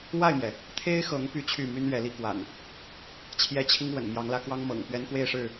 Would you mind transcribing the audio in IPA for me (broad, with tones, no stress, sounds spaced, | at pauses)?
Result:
w a˥˨ ɪ̯ m j ɛ˩ | t̪ʰ e˦ ɪ̯ x ɤ˨˦ ŋ p y˥˨ t͡ɕʰ y˥˨ m y˦ n ɥ ɛ˨˦ l i˦ k w a̰˨˩ n | t͡ɕʰ j ɛ˦ t͡ɕʰ i˦ ŋ w ə̰˨˩ n m j ɑ˨˦ ŋ l ä˨˦ k w ɑ˦ ŋ m ɤ̰˨˩ ŋ p ɥ ɛ˦ n k w e˥˨ ɪ̯ ʂ ɻ̩˥˨